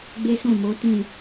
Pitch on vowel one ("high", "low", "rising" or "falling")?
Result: high